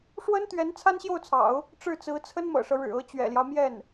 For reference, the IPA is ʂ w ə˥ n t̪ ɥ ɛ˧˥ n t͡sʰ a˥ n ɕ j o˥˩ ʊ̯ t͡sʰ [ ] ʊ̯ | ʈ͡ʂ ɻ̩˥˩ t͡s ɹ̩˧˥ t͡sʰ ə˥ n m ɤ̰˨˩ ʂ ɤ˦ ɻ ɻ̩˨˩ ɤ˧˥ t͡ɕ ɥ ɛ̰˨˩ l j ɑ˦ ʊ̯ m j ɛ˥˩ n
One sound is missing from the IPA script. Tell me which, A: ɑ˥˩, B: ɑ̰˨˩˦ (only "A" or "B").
B